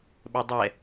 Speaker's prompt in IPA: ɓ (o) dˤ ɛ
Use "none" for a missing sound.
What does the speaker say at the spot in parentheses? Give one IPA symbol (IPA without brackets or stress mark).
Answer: ɵ